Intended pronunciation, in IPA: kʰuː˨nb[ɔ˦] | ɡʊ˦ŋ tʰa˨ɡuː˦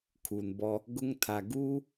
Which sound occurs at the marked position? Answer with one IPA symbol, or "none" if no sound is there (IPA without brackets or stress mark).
ɔ˦